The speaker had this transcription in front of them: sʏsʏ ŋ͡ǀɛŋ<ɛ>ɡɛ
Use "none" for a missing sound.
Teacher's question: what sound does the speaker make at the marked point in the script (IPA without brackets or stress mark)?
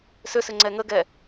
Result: ə